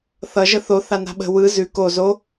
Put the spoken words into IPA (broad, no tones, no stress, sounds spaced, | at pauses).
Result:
θ ʌ ʒ ə θ o θ a n a̤ ɓ ə̤ w ɯ z ʉ k o z o